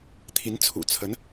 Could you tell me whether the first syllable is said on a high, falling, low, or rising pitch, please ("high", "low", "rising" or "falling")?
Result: rising